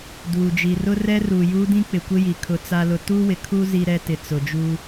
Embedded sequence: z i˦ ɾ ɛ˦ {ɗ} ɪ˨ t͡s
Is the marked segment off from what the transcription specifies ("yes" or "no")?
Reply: yes